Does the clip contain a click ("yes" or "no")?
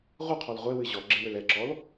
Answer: yes